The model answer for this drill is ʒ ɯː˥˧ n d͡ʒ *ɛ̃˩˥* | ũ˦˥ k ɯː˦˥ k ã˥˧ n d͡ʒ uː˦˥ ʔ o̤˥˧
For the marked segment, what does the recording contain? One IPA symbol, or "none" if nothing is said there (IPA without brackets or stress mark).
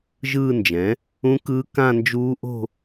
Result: ɛ̃˩˥